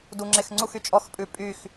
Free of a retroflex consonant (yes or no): yes